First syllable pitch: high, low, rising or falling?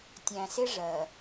low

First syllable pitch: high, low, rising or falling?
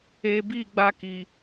low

